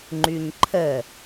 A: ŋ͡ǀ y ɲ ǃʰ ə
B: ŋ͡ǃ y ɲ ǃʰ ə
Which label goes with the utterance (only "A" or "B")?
B